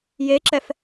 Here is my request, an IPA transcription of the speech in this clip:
jeǁɛf

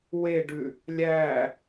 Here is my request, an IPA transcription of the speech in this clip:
weɖʉ | lʲæ

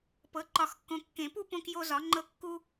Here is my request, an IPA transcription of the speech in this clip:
pɤ˩˥ǃɒ˨˩˦xkːõ˨ kːẽ˨˩˦pu˦ põ˦kjo˦zɒ˩˥ŋ͡ǃɤ˦ kːu˦

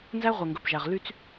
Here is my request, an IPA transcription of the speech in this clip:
nzæ˦ʁʷɛ˨ŋɡɵ˨pʒæ˨ʁ ly˦t͡s

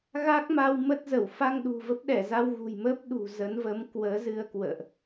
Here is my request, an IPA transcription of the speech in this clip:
ɣa˦˥k̚ma˧w mə˦˥t̚zə˧˩w fa˧ŋ ɗṳ˨˩və˦˥p̚ɗɛ˧˩za˧w ɣṳ˨˩jmə˦˥p̚ ɗṳ˨˩zə˨˦nvə˨˦m kwəː˨˦zɨ˧ə̯kwə̰ː˧˨ʔ

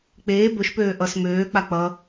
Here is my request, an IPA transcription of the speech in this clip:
k͡peː bɵʃpøː ʔʌs møː k͡pak͡pʌ

